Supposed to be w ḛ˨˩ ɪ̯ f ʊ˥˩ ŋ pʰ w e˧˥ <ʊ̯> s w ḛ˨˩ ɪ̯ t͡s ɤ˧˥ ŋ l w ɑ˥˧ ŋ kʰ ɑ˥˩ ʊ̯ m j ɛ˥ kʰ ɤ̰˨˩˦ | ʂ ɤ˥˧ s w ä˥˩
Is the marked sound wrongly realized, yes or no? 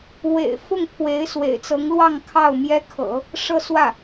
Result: yes